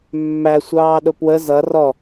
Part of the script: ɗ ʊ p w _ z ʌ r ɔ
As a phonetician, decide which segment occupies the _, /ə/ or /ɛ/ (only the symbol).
ə